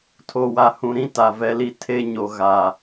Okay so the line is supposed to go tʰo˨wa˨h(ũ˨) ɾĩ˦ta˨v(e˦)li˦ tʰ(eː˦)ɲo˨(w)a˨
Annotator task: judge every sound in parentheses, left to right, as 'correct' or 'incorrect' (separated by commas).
correct, incorrect, incorrect, incorrect